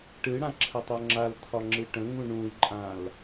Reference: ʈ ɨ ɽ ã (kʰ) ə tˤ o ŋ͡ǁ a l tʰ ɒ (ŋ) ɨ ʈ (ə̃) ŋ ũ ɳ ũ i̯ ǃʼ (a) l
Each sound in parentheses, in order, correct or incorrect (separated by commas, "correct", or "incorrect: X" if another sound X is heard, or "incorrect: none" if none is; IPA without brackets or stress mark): incorrect: ǁʰ, incorrect: ŋ͡ǁ, correct, incorrect: ã